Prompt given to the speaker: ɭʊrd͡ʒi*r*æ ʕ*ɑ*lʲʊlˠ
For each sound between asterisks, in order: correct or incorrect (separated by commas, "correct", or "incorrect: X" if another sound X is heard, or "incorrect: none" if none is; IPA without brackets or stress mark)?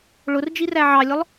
correct, correct